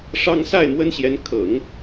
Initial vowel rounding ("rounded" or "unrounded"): unrounded